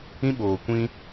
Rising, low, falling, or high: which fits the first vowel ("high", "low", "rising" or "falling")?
high